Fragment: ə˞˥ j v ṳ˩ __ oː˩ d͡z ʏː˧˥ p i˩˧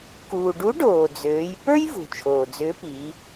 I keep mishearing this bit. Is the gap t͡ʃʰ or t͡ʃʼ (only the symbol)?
t͡ʃʰ